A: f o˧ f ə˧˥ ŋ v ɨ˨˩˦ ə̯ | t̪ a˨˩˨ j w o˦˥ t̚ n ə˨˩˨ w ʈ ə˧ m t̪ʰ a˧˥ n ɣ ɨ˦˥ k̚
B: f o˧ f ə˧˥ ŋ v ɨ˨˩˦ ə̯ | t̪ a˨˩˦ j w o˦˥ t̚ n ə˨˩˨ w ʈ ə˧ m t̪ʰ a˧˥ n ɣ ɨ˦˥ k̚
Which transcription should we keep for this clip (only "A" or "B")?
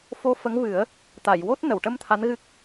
A